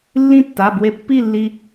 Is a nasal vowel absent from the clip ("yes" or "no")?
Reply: no